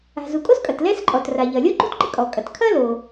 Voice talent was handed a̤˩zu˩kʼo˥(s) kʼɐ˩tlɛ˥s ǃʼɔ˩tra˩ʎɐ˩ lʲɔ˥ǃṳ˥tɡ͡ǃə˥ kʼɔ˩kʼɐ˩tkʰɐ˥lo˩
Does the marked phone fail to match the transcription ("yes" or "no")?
no